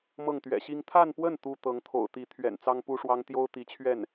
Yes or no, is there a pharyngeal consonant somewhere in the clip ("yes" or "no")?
no